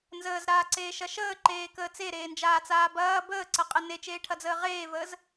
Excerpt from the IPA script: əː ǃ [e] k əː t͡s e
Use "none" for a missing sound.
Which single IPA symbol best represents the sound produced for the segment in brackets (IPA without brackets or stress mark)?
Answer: eː